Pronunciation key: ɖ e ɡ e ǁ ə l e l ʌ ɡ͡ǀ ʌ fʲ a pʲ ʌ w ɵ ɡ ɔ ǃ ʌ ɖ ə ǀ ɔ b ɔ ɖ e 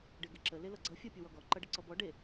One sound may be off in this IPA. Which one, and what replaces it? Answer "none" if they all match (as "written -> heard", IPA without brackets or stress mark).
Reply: ɵ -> ɔ